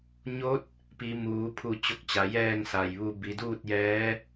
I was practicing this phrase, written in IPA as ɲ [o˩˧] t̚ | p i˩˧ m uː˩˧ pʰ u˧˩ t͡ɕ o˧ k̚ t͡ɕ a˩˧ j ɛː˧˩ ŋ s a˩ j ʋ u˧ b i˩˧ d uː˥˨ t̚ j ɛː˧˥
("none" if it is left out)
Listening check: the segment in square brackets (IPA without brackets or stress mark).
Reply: o˧˥